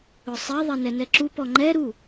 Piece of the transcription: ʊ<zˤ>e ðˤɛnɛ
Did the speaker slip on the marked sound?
yes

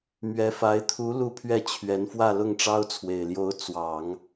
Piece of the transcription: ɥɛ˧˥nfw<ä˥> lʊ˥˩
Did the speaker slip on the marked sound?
yes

